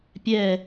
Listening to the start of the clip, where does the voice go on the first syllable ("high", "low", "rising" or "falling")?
falling